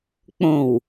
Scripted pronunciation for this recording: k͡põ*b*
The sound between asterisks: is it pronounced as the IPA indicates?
no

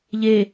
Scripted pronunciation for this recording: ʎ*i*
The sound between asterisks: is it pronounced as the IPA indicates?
no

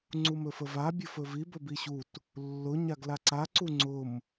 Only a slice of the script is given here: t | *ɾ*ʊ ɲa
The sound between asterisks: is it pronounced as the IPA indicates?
no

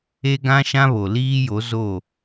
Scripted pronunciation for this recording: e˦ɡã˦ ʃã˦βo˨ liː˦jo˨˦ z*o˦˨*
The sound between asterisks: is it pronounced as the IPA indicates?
yes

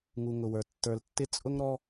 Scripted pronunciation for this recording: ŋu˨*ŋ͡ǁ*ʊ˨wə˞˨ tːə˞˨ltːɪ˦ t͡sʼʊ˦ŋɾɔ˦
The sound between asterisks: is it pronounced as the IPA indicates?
no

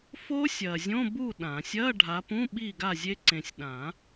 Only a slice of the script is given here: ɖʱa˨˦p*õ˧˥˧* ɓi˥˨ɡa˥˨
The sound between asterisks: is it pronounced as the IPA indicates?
no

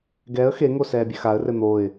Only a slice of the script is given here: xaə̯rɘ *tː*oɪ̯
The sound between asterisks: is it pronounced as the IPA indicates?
no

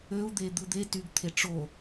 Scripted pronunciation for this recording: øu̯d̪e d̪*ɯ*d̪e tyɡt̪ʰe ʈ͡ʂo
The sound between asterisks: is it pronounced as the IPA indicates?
yes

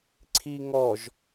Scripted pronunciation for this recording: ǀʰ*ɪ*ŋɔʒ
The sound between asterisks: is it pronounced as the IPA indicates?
no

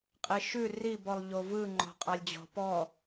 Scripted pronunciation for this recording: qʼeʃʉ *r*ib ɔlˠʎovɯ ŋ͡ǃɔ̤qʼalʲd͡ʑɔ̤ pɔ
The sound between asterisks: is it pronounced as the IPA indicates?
yes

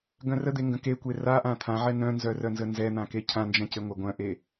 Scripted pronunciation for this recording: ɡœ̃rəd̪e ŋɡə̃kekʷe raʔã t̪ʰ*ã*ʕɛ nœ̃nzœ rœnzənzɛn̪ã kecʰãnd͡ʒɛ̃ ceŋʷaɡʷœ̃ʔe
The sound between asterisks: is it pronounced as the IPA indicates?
yes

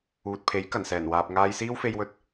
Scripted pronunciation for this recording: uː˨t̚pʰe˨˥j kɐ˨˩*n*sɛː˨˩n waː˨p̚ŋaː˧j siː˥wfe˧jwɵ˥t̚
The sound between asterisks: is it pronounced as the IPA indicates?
yes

